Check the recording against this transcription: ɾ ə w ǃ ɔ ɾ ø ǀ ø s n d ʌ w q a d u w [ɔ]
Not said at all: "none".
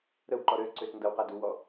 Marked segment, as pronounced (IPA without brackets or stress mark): ɔ